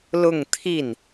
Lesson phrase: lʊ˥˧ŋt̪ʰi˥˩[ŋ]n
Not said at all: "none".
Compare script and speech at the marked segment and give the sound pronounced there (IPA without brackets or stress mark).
none